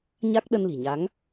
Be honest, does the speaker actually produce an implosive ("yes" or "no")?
yes